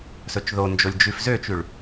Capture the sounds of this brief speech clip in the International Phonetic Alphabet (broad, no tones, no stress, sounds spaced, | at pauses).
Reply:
s ɵ t͡ʃ ð o n d͡ʒ o lʲ d͡ʒ ʉ f z ø t͡ʃ ʉ ɭ